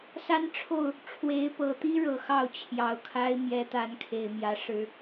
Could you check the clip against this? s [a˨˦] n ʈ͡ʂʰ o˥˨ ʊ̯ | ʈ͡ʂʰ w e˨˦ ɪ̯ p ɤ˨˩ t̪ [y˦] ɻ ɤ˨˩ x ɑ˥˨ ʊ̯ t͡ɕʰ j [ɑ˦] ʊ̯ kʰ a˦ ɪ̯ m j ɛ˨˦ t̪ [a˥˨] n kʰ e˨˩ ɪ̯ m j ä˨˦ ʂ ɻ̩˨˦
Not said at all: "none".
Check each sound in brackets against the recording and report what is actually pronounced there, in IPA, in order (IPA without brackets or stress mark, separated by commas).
a˦, i˦, ɑ˨˩, a˨˦